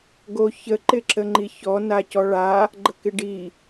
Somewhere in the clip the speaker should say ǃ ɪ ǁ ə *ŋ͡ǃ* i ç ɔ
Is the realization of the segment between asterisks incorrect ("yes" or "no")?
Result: no